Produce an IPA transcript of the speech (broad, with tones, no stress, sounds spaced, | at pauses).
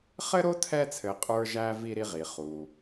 χ ɘ˥ ɾ o˥ tʰ ɛ˦ t͡sʰ ɘ˨ qʼ ə˞˦ ʒ æ˦ v i˦ ɾ i˦ ʁ i˩ χ u˩